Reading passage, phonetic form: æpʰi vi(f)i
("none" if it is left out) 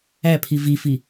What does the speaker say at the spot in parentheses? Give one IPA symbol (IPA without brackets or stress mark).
f